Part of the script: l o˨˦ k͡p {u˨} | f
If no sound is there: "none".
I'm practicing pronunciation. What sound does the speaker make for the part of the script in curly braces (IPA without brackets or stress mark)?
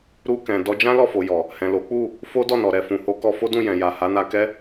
u˦˨